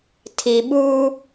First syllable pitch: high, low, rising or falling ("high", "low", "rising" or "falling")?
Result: low